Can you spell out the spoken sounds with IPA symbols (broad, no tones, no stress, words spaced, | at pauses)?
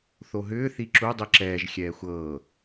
θoɦʏː θiǁu dˤiǁɛːʒ xʲɛːxʷɤː